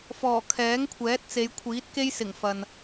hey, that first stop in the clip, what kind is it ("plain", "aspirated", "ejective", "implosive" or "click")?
aspirated